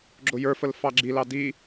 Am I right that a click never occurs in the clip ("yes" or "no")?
no